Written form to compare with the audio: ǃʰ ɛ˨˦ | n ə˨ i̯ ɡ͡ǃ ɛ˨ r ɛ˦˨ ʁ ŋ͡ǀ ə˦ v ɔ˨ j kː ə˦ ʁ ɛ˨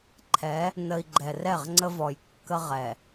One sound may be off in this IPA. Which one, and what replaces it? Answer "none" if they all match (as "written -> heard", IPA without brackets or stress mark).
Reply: none